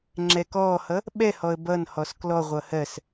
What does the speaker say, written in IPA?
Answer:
ŋ͡ǁɛkɔːhʌ | ɓɛhɔə̯ bʌnhɔs klɔʁʷʌ hɜs

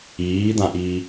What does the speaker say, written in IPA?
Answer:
iːd̪ãʔiː

